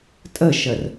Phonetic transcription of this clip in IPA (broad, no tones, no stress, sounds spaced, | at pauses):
tʼ ə ʃ ə r